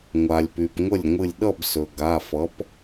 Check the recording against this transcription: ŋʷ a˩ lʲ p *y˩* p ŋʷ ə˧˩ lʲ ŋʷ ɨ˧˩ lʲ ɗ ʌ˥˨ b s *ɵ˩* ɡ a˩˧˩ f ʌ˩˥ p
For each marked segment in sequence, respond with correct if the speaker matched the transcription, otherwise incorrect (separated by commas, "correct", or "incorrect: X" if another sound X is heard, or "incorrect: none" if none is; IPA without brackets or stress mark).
correct, correct